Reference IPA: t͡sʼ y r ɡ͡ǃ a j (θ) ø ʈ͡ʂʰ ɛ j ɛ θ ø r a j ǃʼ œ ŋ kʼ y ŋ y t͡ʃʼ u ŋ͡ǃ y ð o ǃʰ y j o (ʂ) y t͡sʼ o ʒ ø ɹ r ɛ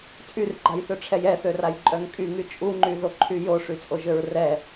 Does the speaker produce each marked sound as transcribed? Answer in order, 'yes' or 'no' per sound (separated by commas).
yes, yes